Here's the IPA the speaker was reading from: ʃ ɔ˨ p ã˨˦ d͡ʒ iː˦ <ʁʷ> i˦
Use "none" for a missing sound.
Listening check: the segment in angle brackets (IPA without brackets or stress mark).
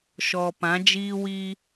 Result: w